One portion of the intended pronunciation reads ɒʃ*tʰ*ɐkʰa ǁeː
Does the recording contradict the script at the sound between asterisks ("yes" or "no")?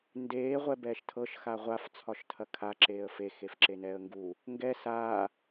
no